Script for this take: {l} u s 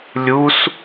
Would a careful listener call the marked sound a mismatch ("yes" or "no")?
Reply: yes